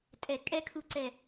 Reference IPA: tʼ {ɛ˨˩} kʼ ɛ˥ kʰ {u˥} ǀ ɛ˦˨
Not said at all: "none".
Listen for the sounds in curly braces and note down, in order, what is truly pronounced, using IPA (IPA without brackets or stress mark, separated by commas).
ɛ˨˩, u˦˨